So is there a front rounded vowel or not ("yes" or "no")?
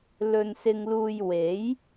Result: no